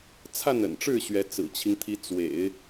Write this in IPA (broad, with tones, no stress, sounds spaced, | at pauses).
t͡sʰ a˥˩ n ə̰˨˩ n ʈ͡ʂ ɻ̩˥˩ ɕ ɥ ɛ˧˥ t͡s ɹ̩˨˩ t͡ɕʰ i˦ ŋ t̪ʰ i˧˥ t͡s w ḛ˨˩˦ ɪ̯